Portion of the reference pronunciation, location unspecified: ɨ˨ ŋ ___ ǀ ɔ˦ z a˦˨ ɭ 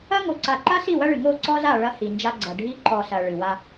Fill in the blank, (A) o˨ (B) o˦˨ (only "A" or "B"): B